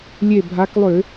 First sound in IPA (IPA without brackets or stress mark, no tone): lʲ